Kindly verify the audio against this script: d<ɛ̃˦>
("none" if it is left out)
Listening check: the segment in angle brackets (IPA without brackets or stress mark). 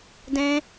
ɛ̃˦